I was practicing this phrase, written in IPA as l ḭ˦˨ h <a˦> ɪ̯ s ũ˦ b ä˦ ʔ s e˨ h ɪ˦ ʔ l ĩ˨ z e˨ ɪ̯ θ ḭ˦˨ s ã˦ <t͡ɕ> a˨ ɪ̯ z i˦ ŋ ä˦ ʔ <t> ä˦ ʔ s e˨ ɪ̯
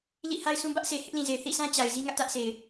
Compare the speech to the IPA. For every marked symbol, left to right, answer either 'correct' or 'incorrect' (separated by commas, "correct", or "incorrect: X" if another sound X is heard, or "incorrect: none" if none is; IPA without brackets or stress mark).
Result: correct, correct, correct